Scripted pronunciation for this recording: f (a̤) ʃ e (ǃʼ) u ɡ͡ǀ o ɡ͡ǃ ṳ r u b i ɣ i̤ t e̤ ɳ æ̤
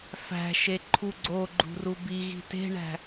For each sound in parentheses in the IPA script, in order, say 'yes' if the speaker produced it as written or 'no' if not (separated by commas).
no, no